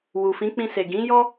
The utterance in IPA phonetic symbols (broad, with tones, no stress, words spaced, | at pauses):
wu˨fĩ˨˦k͡pĩ˧se˨ ɡĩ˨˦ jɔ˦